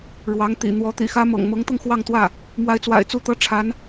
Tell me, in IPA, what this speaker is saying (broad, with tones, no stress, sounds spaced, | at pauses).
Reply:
ɻ w ɑ˧˥ ŋ t̪ ḭ˨˩ n̪ w ɔ˧˥ t̪ ḭ˨˩ x ä˥ m ɤ̰˨˩ ŋ m ɤ˧˥ ŋ t̪ ɤ˧ ŋ x w ɑ˥˧ ŋ t̪ w ä˥˩ | m w a˧˥ ɪ̯ t͡s w a̰˨˩ ɪ̯ t͡s u˥˩ t̪ ɤ˥ ʈ͡ʂʰ a˧˥ n